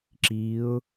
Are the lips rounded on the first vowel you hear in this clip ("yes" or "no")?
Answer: no